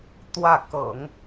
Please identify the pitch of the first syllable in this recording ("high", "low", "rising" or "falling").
falling